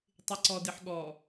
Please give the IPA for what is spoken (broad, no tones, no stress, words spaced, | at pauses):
tˤɪǀɔdɪħɠɔ